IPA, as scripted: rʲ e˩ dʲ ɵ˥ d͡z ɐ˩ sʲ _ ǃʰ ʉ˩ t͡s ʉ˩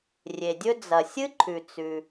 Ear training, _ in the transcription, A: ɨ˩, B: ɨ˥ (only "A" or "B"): B